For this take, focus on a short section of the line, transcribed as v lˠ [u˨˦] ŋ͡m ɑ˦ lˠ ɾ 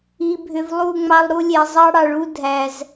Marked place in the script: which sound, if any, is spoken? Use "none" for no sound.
u˦˨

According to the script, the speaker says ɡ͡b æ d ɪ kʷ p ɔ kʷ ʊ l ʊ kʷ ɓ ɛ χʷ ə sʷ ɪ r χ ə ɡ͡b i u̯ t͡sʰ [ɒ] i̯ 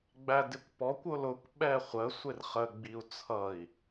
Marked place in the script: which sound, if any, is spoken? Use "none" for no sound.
ʌ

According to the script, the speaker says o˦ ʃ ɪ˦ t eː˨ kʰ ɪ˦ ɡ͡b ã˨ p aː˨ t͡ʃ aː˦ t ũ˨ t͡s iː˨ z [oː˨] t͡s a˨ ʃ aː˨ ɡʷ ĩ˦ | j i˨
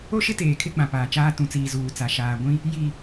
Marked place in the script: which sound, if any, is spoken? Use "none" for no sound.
uː˨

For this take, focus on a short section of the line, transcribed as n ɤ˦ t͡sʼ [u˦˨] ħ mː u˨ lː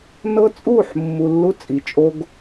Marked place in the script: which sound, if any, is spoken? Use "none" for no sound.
u˦˨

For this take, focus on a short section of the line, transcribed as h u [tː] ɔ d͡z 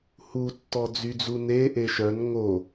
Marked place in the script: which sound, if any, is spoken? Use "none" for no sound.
tː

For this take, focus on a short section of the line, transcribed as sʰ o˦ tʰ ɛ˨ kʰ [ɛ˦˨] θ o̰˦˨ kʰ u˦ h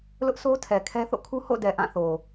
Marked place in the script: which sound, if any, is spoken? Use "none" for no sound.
ɛ˦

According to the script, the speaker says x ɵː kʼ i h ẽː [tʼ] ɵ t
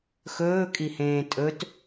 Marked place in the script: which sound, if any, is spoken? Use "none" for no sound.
tʼ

